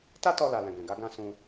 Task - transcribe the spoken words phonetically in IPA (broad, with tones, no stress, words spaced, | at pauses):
ta˦tɔ˧la˨ lɛ̃˨ɡɛ̃˨ ɡa˨˦ɡã˦˨ sũ˧